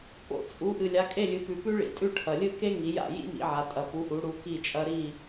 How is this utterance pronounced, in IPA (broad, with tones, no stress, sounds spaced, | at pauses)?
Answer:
k o̰˩ t͡sʼ u˩˧ ʔ ɨ˩ lʲ a˩˧ kʼ e˥˨ lʲ ɨ˩˧ p ʉ˩ p ʉ˥ ɭ ḭ˩ tʼ ʉ˥˨ ʈʰ ɐ˩ lʲ ɨ˥˨ k e˥ ŋ i˩˧ j a̰˥˨ j ḭ˥ m ḭ˩˧ ʕ a˩˧ tʼ ɐ˩ p u˩˧ ʔ u˩˧ ɽ u˩˧ k i˥˨ t͡ʃʼ ɐ˥ ɾ i˥˨